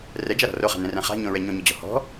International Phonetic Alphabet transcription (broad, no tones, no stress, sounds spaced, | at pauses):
r ɛ d͡ʒ a ɾ ɔ̤ r o χ a̤ n ɛ̃ r ɛ̃ χ a̤ ɲ õ ɹ ɛ ɲ õ ɲ ɵ d͡ʑ ɔ̤ h ɔ̤